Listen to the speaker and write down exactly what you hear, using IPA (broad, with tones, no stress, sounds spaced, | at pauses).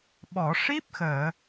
ɓ ɔ˨˩˨ ʂ i˦˥ p̚ x əː˨˩˨